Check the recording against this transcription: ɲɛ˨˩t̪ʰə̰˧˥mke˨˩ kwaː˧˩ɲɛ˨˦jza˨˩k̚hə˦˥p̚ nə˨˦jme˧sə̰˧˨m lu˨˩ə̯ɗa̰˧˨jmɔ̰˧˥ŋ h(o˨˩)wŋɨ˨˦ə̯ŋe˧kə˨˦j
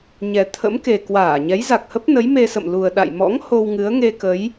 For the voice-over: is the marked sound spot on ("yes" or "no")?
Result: no